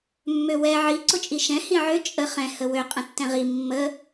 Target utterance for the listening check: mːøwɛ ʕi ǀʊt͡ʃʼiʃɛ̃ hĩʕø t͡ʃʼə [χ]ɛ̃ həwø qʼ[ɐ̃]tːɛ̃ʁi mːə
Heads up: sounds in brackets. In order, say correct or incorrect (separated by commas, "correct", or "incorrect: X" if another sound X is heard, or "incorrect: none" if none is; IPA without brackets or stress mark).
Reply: correct, incorrect: ə̃